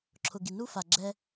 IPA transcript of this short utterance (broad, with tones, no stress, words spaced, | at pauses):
ǁʰʊ˩ɡi˩ nu˥fa˩ɡ͡ǁɛ˧